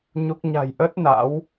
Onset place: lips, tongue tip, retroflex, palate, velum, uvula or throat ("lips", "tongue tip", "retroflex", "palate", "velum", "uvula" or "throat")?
palate